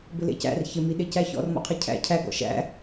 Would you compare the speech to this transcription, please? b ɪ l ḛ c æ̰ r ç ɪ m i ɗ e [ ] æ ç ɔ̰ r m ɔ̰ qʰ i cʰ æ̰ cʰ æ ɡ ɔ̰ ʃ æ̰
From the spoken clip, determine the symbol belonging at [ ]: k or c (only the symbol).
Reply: c